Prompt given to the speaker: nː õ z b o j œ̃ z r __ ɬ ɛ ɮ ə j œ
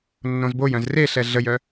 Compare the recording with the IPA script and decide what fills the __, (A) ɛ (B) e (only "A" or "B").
B